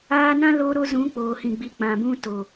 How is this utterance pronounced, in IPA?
aː˧ n ã˦ l o˧ ɾ o˧ z ũ˨˦ k͡p oː˨ h ĩ˨ ɡ͡b i˨ k͡p ã˨ b ũ˧ t o˨

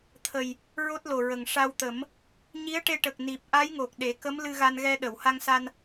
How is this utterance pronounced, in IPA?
t̪ʰ ə˨˩ j | ɹ o˦˥ t̚ l o˨˩ ɹ ə˨˩ ŋ ʂ a˧ w t̪ ə˨˩˦ m | ɲ i˧˥ ə̯ ʈ e˧ ʈ ə˨˩ k̚ n i˨˩ p̚ ʔ a˧˥ j ŋ o˨˩ k̚ ɗ e˨˩˦ k ə˧˥ m l ɨ˧ ɣ a˧ n ɣ ɛ˧ ɗ ə˨˩˨ w h a˧ ŋ s a˧ n

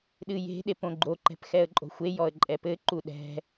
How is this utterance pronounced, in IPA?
ɗ ɨ j e̤ ɗ e p õ ɡ͡ǃ o ǃ ɛ̤ p x ɛ ə̯ ǃʼ o̤ xʷ e j ɔ ə̯ ǃʼ ɛ p ɘ ǃ u ɗ ɛ̤

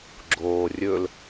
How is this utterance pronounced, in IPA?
ɡ͡ǁ oː rʲ ɵ l

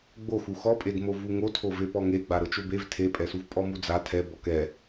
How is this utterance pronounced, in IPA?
ɡ͡b o x u x ɔ pʼ e d m o v u ŋ o tʰ o v e p ɔ ŋ e ɡ͡b a ɾ ɤ t͡ʃ o b e v tʰ e pʼ ɛ s u v pʼ ɔ m u d͡z a tʰ ɛ b ɔ k ɛ

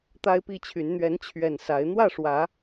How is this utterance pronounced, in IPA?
t̪ a˦ ɪ̯ p i˥˨ t͡ɕʰ y˨˦ n n̪ ɥ ɛ˨˦ n t͡ɕʰ ɥ ɛ˨˩ n s a˨˦ ɪ̯ n̪ w ä˥˨ ʂ w ä˨˦

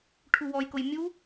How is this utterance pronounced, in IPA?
ʈʰ u w ɔ j k ʊ j mʲ u

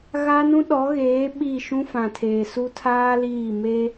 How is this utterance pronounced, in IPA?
ɣ a˦ n ũ˦ ɗ ɔ˨˦ ɣ eː˨˦ ɓ i˦˨ ʃ ũ˦ f ã˨ tʰ eː˨ s u˦ tʰ aː˦ l iː˦˨ m e˦

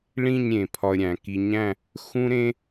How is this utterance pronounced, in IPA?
ɭ ĩ˥˧ ɲ ɾʲ ẽ˩˧ pʰ ɒ˧ ə̯ ɾʲ æ̃˩˧ k i˧ ɲ æ̃˥˧ | x ũ˥ ɾ ẽ˥

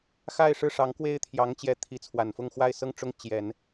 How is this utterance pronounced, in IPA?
x a˥˧ ɪ̯ ʂ ɻ̩˥˩ ʂ ɑ˧˥ ŋ k w e˥ ɪ̯ t̪ʰ j ɑ˧˥ ŋ t͡ɕ j ɛ˧˥ t̪ʰ i˧˥ t͡sʰ w a˨˩ n f ʊ˥˧ ŋ x w a˥˧ ɪ̯ s ɤ˥˩ ŋ ʈ͡ʂ ʊ˥ ŋ t͡ɕ j ɛ˨˩˦ n

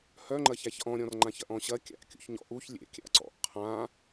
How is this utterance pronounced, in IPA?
h œ ŋ͡ǃ ɐ ç æ ç ʔ ɔ̃ ɾʲ ɔ̃ r ŋ͡ǃ ã ç ɐ ʔ ɔ̃ ɕ ɐ kʲ a̰ ʔ kʲ ṵ ç ɲ ɔ̰ ʔ u ç lʲ ḛ kʲ a̰ ǀ ɔ̰ ʔ qʰ ã

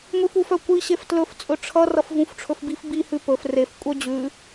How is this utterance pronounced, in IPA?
ŋʷ i f u f œ kʷ i ɕ e f t l ɵ f t͡sʼ ɵ ʈ͡ʂʰ ʌ r ʌ f v ũ f ʈ͡ʂʰ ɵ f b i f b i h ʉ p ɵ f r e f kʷʼ œ d͡ʑ ʉ

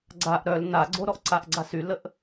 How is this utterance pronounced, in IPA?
ɡ͡ǀ a ʔ ɾ œ l n a ɡ͡ǀ o ɾ ɔ ʔ ǀ a ʔ ɡ͡ǀ a s y l ə ʔ

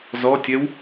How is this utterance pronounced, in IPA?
z ɔ tʲ ɛ w

